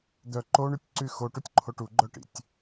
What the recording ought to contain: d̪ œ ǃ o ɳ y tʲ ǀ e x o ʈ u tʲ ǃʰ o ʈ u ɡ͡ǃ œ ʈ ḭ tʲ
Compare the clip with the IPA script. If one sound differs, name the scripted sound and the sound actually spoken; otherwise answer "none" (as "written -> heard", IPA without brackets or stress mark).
e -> y